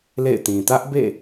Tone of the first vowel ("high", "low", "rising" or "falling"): falling